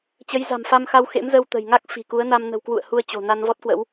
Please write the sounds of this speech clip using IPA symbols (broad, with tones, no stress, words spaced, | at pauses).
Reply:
t͡ɕə˨˦jza̤˨˩mfa˧mxa˧w xḛ˧˥mzə˧w t̪ə̤˨˩jŋa˦˥k̚ fi̤˨˩ku˨˦ə̯na˧m nə̤˨˩wkwṵ˧˨ə̯ hu˧ə̯ t͡ɕo̤˨˩na˧n vɔ˦˥t̚kwə̰˧˥w